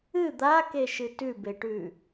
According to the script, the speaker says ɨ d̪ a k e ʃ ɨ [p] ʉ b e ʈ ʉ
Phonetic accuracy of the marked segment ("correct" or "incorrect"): incorrect